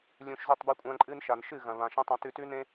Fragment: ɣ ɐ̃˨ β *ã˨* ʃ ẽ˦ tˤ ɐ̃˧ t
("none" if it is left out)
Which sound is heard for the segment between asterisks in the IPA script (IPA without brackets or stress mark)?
ã˨